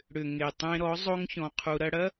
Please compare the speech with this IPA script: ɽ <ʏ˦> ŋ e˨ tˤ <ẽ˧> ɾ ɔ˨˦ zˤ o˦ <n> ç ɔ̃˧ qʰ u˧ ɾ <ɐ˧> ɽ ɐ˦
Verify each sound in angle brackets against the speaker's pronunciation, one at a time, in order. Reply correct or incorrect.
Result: incorrect, correct, incorrect, correct

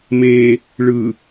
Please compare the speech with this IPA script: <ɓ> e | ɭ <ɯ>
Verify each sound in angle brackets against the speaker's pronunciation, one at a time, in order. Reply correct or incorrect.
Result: incorrect, correct

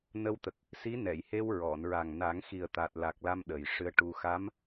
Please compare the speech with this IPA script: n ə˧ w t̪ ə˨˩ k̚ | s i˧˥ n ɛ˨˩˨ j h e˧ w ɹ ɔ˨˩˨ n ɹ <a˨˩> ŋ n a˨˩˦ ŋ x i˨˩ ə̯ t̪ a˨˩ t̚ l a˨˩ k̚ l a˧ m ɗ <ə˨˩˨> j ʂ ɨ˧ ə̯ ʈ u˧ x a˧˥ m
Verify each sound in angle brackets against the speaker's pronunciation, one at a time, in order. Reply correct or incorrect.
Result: correct, incorrect

